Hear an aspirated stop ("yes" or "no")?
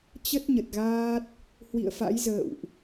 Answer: no